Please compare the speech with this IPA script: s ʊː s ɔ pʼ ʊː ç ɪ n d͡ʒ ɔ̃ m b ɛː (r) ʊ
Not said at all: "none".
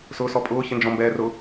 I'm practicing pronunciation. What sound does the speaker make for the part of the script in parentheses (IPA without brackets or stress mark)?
r